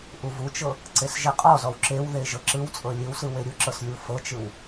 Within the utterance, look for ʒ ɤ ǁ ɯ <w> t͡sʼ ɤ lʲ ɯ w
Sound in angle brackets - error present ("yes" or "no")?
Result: no